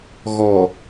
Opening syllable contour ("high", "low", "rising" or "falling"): low